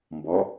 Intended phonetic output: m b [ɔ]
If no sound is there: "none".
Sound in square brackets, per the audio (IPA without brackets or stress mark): ɔ